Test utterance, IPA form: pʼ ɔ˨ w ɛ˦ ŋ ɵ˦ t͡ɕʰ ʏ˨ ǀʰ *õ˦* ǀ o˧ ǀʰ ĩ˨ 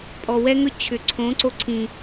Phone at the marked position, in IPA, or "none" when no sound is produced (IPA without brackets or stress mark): õ˨˦